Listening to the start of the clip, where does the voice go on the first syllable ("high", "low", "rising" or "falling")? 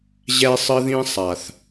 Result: high